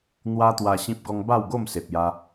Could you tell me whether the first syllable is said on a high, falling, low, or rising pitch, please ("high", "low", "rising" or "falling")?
high